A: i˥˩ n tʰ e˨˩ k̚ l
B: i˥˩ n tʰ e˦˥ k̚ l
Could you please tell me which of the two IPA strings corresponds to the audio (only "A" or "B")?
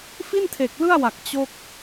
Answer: A